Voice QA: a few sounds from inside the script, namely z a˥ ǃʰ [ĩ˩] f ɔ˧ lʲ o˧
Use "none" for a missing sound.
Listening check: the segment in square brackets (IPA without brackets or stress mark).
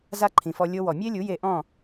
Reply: ĩ˩